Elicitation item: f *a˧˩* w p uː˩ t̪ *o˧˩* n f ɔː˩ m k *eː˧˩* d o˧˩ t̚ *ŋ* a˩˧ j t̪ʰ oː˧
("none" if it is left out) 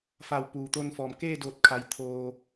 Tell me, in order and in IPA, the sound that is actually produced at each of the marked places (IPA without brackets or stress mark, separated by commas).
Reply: a˧˩, o˧, eː˥˨, kʰ